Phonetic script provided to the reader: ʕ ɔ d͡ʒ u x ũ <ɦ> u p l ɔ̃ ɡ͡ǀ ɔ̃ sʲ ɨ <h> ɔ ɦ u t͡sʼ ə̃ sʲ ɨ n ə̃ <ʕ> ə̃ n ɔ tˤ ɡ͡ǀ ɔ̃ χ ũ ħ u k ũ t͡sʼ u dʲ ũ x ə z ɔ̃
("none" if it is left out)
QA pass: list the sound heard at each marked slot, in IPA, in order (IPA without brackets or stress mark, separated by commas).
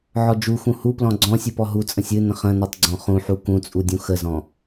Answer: h, p, χ